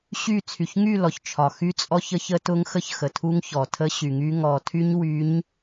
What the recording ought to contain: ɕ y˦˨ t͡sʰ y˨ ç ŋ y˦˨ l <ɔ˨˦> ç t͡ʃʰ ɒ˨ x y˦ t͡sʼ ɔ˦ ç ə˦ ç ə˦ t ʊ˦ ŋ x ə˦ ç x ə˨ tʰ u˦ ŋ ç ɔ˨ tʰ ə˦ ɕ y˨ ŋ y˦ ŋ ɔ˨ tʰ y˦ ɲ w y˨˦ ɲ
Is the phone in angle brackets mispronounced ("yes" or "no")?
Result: yes